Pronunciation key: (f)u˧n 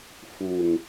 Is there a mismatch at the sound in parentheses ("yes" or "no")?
no